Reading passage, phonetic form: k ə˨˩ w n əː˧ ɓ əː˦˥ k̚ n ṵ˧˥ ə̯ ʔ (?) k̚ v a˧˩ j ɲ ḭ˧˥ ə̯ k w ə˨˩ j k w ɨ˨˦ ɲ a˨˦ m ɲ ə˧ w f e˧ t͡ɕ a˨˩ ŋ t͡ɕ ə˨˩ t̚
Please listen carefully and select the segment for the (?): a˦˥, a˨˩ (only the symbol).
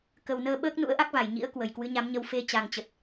a˦˥